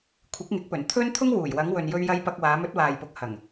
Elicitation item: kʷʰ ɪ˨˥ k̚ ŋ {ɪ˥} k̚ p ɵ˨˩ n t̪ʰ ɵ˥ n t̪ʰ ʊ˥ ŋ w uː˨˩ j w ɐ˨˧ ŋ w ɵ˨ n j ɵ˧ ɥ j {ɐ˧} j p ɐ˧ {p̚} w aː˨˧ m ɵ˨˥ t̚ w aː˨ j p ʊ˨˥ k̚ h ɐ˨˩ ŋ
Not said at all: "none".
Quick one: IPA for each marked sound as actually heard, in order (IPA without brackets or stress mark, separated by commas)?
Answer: ɪ˨˥, ɐ˧, k̚